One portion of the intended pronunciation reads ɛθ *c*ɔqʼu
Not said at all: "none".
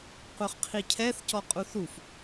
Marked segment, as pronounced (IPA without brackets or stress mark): c